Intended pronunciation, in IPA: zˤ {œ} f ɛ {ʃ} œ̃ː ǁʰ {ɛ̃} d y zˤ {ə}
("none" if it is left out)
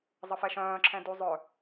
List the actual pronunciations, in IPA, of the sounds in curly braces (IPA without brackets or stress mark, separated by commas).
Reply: ə, ʃ, ɛ̃, œ